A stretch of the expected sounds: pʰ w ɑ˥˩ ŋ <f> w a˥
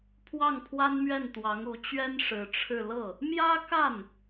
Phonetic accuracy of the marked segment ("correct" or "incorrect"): incorrect